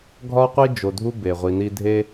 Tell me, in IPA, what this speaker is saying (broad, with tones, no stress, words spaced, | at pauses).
ɡʱɒ˥qʷi˥ d͡ʒo˨dʱu˦ be˩ʁʷi˨ni˦ dʱe˥